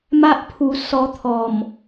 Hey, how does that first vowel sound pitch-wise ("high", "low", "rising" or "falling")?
high